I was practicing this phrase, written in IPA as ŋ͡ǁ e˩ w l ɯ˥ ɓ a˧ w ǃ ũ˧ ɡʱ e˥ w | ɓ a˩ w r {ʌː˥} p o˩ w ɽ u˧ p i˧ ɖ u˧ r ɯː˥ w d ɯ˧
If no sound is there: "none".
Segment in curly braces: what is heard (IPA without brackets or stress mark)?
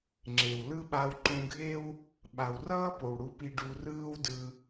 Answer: ʌː˥